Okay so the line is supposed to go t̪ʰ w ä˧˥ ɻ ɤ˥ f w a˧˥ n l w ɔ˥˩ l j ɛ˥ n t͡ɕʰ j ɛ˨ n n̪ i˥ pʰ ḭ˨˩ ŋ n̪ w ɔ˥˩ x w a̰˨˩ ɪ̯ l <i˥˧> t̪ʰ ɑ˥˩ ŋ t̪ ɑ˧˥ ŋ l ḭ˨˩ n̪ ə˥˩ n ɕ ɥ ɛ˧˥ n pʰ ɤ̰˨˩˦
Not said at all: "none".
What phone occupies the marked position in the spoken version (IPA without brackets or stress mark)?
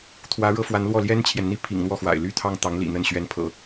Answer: y˥˧